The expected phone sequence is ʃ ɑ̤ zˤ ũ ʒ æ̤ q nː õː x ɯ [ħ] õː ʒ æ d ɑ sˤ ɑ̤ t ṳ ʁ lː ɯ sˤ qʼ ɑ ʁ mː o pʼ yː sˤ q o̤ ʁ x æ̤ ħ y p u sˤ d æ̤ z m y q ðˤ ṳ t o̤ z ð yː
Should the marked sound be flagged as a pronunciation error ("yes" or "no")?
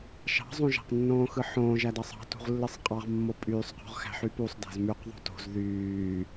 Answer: no